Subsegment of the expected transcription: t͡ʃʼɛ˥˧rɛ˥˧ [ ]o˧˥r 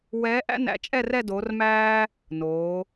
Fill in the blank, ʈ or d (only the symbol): d